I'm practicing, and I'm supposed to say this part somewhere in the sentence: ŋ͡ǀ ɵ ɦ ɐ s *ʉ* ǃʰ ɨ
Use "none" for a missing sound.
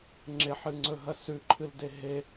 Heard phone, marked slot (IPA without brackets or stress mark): ʉ